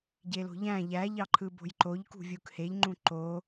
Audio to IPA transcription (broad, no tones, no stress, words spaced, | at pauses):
ɟelo̤ʎæ̃ ʎæʎɑǃʰɯbo̤j ǃoʎkṳvʲuk heʎŋ͡ǃũ ǃo